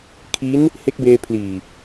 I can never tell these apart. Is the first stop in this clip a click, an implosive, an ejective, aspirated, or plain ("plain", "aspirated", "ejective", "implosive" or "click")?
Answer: aspirated